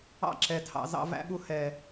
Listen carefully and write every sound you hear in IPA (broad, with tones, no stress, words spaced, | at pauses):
ɑ̰˦˨ǁɛ˨ tʰɑ̰˧zɑ̰˦ væ̰˧ɓu˧ hɛ˨